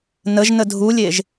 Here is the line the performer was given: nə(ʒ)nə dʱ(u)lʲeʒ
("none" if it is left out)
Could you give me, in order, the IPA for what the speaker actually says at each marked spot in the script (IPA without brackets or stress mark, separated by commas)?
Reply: ʒ, u